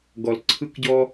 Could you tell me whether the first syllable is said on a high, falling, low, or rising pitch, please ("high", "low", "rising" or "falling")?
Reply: low